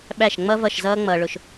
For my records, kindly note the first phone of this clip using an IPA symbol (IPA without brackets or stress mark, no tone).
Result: ɓ